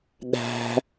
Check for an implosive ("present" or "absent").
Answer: present